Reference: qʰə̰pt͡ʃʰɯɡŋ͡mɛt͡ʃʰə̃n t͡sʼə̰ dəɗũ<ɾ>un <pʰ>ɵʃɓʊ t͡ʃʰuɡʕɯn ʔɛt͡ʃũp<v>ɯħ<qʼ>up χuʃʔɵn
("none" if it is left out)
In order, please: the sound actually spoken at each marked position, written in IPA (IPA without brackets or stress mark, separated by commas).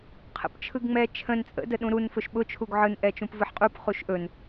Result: ɾ, f, v, qʼ